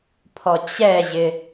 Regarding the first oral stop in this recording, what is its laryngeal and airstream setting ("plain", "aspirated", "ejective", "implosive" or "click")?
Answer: aspirated